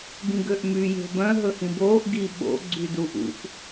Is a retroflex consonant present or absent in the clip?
absent